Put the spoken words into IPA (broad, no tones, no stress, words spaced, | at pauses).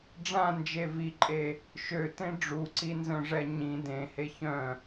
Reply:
ɖ͡ʐãnd͡ʒe viǃʼe | ʃøtẽ ɖ͡ʐuǀinzœ̃ʐɛ ɲĩ dẽhe çœ̃